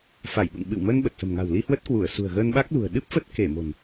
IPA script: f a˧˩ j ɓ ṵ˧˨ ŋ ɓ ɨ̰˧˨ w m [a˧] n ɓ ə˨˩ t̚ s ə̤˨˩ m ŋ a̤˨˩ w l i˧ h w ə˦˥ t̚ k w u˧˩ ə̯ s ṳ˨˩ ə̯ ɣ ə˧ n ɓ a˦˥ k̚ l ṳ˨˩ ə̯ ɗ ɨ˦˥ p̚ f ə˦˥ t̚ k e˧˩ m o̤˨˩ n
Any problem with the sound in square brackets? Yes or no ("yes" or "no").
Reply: yes